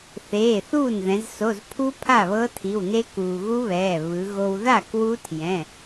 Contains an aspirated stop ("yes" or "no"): yes